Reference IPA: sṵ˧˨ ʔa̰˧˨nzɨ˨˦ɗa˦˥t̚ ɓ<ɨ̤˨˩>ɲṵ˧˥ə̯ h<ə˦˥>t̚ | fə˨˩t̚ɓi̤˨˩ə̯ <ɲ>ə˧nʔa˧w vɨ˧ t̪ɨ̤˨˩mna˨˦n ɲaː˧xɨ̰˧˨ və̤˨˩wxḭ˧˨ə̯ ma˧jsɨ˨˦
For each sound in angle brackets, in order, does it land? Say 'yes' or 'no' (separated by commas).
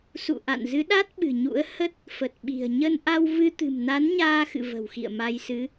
yes, yes, yes